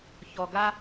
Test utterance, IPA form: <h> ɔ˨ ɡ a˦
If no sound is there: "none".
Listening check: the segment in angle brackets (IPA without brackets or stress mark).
ç